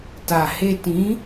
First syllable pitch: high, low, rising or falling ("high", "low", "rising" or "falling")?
low